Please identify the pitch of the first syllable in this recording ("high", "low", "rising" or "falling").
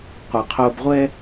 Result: low